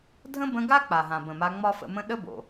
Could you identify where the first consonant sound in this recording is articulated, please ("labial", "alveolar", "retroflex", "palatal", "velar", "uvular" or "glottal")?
alveolar